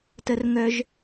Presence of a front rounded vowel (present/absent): present